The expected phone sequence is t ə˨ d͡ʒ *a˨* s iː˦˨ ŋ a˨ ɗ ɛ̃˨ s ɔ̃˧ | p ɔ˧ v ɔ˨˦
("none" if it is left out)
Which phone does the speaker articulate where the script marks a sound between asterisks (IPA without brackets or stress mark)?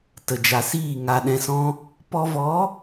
a˨